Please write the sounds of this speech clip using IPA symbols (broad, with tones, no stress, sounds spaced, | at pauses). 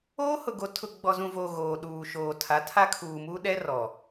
oː˦ h ʊ˨ ɡ o˨˦ tʰ ʊ˨ ɡ͡b ɔ˨ z ũ˨ v oː˨ ɣ oː˨ ɗ uː˨ ʃ oː˨ tʰ a˨˦ tʰ a˦ kʰ uː˨ m uː˦ ɗ ɛ˦ r ɔ˨